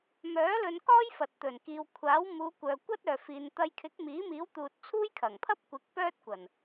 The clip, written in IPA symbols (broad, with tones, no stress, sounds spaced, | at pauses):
m œː˨˥ l ɵ˧ n k ɔː˥ j f ɐ˨ t̚ t̪ ɵ˨˩ n k iː˨ w kʷʰ aː˨˥ w m uː˨˧ kʷ œː˨ kʷ ɐ˥ t̚ œː˨ f iː˨ n t̪ ɐ˧ j kʰ ɪ˨˥ k̚ m iː˨˥ m iː˨˥ w t̪ uː˨ t̚ t͡sʰ uː˥ j kʰ ɐ˨˩ ŋ pʰ ɐ˥ p̚ kʷ ɪ˨˥ k̚ p œː˥ t̚ kʷ ɐ˨˩ n